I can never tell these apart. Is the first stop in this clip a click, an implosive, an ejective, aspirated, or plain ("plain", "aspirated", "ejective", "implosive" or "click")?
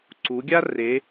click